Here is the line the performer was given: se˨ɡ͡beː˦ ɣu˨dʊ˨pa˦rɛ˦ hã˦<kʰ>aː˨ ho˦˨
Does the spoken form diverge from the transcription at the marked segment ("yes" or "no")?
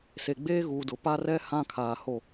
no